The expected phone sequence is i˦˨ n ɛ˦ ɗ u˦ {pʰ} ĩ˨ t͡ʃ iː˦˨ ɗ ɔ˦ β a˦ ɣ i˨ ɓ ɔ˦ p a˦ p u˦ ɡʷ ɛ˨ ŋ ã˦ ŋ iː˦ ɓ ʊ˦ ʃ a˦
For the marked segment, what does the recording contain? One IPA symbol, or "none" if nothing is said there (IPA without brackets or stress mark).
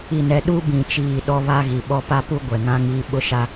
b